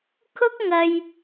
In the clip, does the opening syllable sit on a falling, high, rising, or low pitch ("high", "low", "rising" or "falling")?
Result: high